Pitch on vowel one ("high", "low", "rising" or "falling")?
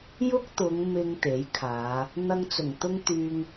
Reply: high